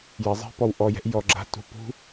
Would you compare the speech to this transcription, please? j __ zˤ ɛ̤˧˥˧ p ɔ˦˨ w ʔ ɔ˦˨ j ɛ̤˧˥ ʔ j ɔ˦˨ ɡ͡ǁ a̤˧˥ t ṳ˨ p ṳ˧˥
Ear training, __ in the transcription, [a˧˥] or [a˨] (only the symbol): a˨